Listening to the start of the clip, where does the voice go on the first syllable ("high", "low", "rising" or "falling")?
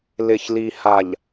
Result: low